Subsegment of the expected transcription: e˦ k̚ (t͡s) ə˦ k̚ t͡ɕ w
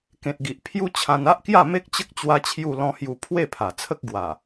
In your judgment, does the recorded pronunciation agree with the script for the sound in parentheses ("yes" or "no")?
no